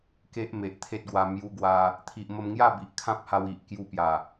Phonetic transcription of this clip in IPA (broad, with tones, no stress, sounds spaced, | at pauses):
k e˦ ʔ m e˨ ʔ t̪ʰ e˦ t̚ ɡ w a˧ m j u˧ ɡ w a˧ | t̪ʰ i˨ ʔ m ə˧ m ŋ j a˥˧ b i˨ ʔ kʰ ã˦ p̚ h a˧ w i˨ ʔ k j u˧ p j a˨˩